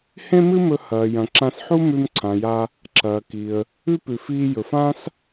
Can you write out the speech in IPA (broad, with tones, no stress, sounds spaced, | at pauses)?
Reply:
h ẽ˥ m ɨ˥ m ɵ˧ h ɐː˩ j ɐ̃˩ ǁ ã˧ s ħ u˥ m ʉ˧ m ǀʰ ã˩ j a˧ | ǁ ɐː˩ k i˩ ə̯ | ʉ˥ p ʉ˩ f iː˧ j ɵ˩ f ã˥ s